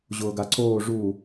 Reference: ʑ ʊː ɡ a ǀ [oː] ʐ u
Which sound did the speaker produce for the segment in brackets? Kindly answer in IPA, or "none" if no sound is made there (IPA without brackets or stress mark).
oː